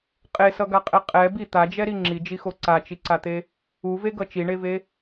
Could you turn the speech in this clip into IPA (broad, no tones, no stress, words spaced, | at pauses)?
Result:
qʼesʌɡaqʼɛ qʼɛ bi t̪ad͡ʒɛɾi ŋ͡ǁid͡ʒixo ǀat͡ʃiǀat̪e | uveɡʌ t͡ʃiɳeve